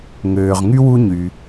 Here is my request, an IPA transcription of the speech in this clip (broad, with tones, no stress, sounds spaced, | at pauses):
ŋ øː˨ ʁ ŋ y˥ w u˦ ɲ y˨